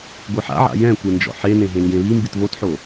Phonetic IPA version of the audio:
ɡʷ ɯ ħ a̰ ʕ a̰ j ɛ̃ kʷ e n d͡ʒ ɔ̰ ħ e n ẽ ɦ ẽ ŋ ɡ ẽ β i m b i t β o t ħ o

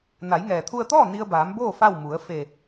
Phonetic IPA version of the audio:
n a˩˧ j ŋ ɛː˩ t̪ʰ u˧ ə̯ t̪ ɔː˥˨ n i˧ ə̯ b aː˩˧ m b oː˥˨ f a˥˨ w m u˩˧ ə̯ f e˧˩

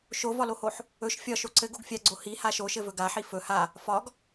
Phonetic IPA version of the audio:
ʃ o v ɒ l o h o ħ | ɵ ʃ fʲ ɒ ʃ o ǀ ɘ ɡ o ɡ fʲ a ɡ͡ǀ o h i h a ʃ o ʃ ɘ v ɵ ɡ a ħ i f ɵ h a | f ɒ ɡ

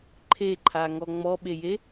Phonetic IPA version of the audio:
ǃʰ e ǃʰ a ŋ ɔ ŋ͡m ɔ ɓ e j e

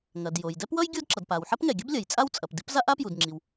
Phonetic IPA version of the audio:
ŋ ɐ˩ d j o˩ j d ɛ˥ p w ʌ˥ j ɡʲ o˥ d ǁ ʌ˩ d p a˩ w ħ ɐ˥ p ŋ ɛ˩ ɡʲ ɐ˥ b lʲ ɐ˩ j t͡sʼ a˥ w t͡sʼ ɐ˩ p d i˥ p z a˥ ʔ a˥ p j u˩ d ŋ͡ǁ i˩ w

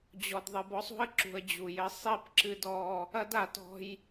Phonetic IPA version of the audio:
d͡ʑ ɔ˨ d ðˤ ɨ˨ b ɔ˦ sˤ ṳ˦ ə̯ ǁ ṳ˨ ə̯ d͡ʑ u˨ j ɘ˦ sˤ i˦˨ p ǁ ɨ˦ d ɔ˦ | ɐ˦ d a˨ t ɔ̤˦ j

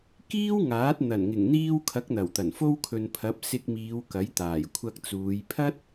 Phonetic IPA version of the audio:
k iː˥ w ŋ aː˨˥ t̚ n̪ ɐ˨˩ n ŋ ɪ˨˩ ŋ n̪ iː˧ w kʰ ɐ˨˥ k̚ n̪ ɐ˨˩ w t̪ ɐ˨˩ n f o˧ w kʰ ɵ˨ n pʰ ɐ˨˥ p̚ s ɪ˧ k̚ m iː˨˧ w k ɐ˨˥ j t̪ aː˨˩ j kʷʰ ɐ˧ k̚ t͡s uː˨˧ j pʰ ɐ˥ t̚

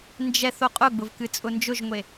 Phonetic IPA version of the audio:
n d͡ʒ ɛ θ o qʼ ʊ ɡ͡b ʊ v k ɨ t͡sʼ ʊ n d͡ʒ ʊ ʒ ŋʷ e

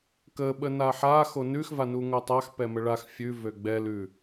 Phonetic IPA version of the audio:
k ə ɓ ə n a ħ a x o n ʉ x v a n u ŋ o tˤ a x p ɛ m ə ɭ a x fʲ ʉ v ø ɡ͡b ɛ l ʉ

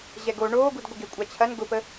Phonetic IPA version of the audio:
ʑ ɛ ɡ o ɳ oː ɡ u d ɡʷ ɪ ɡ e kʷʼ a t͡ɕʰ ɐ n ɡ ʊ p ə

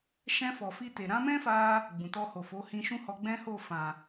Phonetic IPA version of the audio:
ʃ ɛ̃˧ f ɔ˨ f i˧ t e˨ ɾ ã˨˦ m ɛ̃˦ f a˦ | ɡ͡b ũ˨ t ɔ˧ h o˨ f o˨˦ h ĩ˧ ʃ ũ˦ h ɔ˧ ɡ͡b ɛ̃˦ h o˦˨ f ã˨

